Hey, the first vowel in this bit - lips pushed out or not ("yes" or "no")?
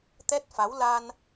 no